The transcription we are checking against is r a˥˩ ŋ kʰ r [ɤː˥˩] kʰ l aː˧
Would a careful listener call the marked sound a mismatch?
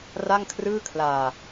yes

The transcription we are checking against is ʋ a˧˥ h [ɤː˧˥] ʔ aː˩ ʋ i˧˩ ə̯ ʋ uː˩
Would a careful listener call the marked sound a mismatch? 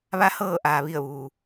yes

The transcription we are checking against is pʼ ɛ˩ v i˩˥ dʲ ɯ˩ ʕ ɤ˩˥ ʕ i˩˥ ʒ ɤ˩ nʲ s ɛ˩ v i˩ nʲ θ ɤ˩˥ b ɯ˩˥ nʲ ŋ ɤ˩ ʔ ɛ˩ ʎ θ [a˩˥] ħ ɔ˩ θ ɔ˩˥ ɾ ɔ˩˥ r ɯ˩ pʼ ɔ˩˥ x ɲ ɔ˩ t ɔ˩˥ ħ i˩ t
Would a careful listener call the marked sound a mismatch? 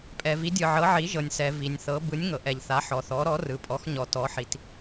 no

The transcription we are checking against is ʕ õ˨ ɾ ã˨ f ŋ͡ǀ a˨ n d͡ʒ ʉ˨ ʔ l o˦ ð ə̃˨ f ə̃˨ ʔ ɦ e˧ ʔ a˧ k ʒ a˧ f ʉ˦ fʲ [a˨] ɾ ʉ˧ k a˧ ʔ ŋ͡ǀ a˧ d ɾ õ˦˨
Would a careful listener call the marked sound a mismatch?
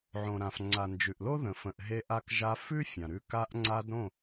yes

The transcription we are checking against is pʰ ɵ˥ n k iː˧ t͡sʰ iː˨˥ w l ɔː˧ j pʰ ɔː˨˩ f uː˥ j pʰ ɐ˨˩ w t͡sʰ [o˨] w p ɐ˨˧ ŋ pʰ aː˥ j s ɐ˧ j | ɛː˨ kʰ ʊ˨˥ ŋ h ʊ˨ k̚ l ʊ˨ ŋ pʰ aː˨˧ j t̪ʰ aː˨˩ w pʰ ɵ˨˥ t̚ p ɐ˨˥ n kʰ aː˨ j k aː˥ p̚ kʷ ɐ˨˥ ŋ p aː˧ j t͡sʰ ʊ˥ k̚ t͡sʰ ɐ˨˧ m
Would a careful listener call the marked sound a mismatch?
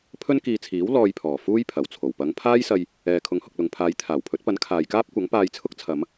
yes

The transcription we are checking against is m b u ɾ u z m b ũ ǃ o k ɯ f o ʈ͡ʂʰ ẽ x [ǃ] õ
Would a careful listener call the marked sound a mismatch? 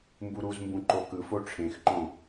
no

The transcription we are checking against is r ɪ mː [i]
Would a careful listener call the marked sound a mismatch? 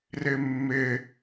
yes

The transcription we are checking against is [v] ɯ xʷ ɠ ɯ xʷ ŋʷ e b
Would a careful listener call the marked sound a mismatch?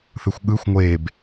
yes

